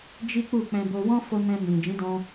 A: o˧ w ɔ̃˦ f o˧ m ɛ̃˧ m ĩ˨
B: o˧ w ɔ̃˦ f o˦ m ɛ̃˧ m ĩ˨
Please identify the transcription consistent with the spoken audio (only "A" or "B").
A